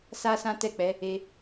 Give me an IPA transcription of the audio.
s a˦ s ã˦ t ɛ˦˨ k͡p ɛ˨˦ | e˧

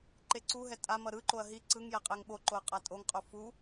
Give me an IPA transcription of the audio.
ǃ e ǀ u ɦ ɛ tʼ a m ʌ ɾ ɯ ǃ o ɐ̯ ɦ i ǀ ɯ ŋ j ɛ qʼ e ŋ ɓ o ǃ o ɐ̯ qʼ a tʼ o ŋ qʼ o f u

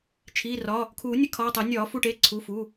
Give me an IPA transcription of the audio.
t͡ʃʰ iː˩˧˩ r ɒ˩˧˩ | kʰ uː˨˩˦ nʲ ə˨˩˦ kʰ ɒː˩˧˩ tˤ ɐ˨˩˦ nʲ ɒː˨˩˦ f u˩˧˩ ʈ e˩˧˩ ǀʰ u˩˧˩ f u˩˧˩

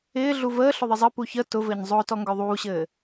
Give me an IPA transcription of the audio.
ɪː ɮ u v əː ɬ ʊ ðˤ ɪ zˤ ɘ p u ç ə t ʊ v ɘː ɲ zˤ ʊː t ɔ ŋ ɡ œ ðˤ uː ɕ ɘː

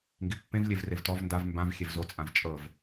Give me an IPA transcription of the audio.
ŋ ɡ i pː ẽ v lʲ e v r e v t ɔ v n d a v m b ã v xʲ e v z o t͡sʼ ã v t͡ʃʼ ɤ v

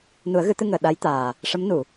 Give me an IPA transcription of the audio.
n u˨˩˦ ə̯ ɣ ɨ˨˩˦ t̪ ɨ˧ ŋ əː˨˩ ɗ a˧˥ j t̪ aː˨˩ | ʂ ə˧˥ m n u˨˩˨

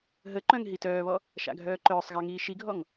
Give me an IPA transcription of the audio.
ɦ ə ǃ œ̃ ŋ ɦ i t œː β ɔ | ʃ a̰ ɡʱ œː ǃ œː sˤ ɣ a ŋ iː ʃ i ɡʱ ɔ ŋ

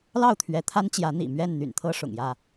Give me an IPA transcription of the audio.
l ɑ˥˨ ʊ̯ t̪ʰ ɥ ɛ˨˦ t̪ʰ a˦ n t͡ɕ j ä˨˦ n̪ ḭ˨˩ m ɥ ɛ˥˨ n n̪ y̰˨˩ n t̪ʰ ɤ˦ ʂ ʊ̰˨˩ ŋ j ä˥˨

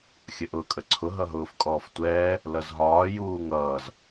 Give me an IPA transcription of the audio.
xʲ ə ʔ ʊː kʼ ə ǀʰ ʊ ɦ ʌ ɦ ʊː f kʼ ɔː f tʷ ɛː | l ʌ z ɦ ɒː j uː ŋ ʌː z

